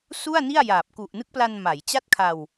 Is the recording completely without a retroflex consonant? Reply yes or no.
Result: yes